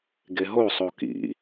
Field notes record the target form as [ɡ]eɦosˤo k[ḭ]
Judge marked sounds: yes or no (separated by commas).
yes, yes